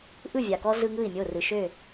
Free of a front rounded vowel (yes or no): no